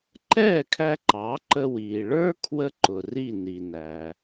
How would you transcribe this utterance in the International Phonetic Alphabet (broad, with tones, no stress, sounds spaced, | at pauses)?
ǃ ɛː˥˩ kʰ æ˧ ǃ ɑ˩˥ ǃ ə˧ w iː˩ ɭ ə˞˥ kʰ w ə˥ ǃ ʊ˩ r i˥˩ n i˩ n æ˩